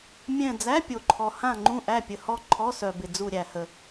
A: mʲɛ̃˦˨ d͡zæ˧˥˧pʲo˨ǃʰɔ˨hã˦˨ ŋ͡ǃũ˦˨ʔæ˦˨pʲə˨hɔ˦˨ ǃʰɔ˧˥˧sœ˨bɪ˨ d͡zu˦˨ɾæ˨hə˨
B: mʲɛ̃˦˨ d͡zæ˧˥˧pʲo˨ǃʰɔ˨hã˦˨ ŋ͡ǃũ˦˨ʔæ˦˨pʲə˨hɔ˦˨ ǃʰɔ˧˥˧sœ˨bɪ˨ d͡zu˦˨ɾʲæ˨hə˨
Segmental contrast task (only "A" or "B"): B